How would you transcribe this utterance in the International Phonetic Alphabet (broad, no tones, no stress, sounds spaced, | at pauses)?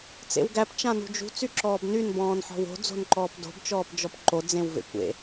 t͡s ḛ w ɡ æ p t͡ʃ ã n ṳ d͡ʒ ṳ t͡s y ǁ ɔː b n y n b ɔ̃ː n ħ ɔ̤ w o̤ d͡z o̤ n ǃ ɔː p d o̤ b t͡ʃ ɔː p d͡ʒ ɔ p ǃ o d͡z ẽ w v ḛ kʷ ḛ